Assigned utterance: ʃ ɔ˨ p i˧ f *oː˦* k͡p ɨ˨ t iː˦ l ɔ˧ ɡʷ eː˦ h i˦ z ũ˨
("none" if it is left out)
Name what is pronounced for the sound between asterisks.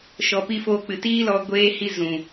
oː˧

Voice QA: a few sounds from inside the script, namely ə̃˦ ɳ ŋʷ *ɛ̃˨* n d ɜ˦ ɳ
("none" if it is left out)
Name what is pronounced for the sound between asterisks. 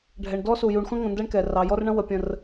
ə̃˨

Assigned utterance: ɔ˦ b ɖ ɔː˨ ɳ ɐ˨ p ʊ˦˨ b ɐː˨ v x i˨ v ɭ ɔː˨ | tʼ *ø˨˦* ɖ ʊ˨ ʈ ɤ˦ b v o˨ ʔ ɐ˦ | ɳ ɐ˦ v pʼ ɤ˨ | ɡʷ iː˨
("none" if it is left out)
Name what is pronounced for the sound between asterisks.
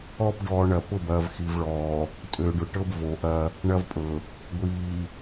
ø˨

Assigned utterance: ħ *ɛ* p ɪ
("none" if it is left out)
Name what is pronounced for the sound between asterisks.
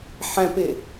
ɛ̃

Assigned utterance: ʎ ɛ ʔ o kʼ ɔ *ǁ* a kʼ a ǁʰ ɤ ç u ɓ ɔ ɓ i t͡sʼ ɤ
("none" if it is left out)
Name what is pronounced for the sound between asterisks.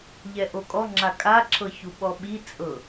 ŋ͡ǁ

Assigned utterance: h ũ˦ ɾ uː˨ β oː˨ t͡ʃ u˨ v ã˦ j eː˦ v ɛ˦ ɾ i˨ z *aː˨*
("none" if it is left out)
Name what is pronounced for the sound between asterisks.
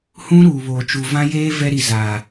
aː˨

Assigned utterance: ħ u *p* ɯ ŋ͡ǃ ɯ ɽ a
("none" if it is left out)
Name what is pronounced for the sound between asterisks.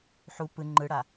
p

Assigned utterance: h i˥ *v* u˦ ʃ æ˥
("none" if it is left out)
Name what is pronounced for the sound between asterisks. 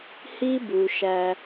b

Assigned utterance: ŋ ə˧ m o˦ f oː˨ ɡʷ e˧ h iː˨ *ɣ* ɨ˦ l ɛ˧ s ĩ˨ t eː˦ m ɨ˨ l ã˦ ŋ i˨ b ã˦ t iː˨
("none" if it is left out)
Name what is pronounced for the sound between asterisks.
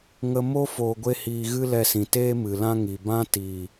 ɣ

